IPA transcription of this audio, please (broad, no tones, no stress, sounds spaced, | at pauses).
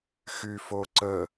x y f o ǀ ə